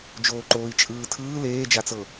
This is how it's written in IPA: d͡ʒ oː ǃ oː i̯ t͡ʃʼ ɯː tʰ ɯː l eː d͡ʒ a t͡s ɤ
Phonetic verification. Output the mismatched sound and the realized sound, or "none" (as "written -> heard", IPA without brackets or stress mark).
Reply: none